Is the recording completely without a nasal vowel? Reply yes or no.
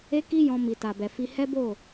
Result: no